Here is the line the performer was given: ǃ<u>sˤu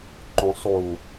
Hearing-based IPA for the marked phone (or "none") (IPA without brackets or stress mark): ũ